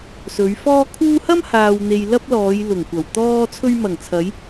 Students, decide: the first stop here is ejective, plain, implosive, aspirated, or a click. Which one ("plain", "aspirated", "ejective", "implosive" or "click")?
aspirated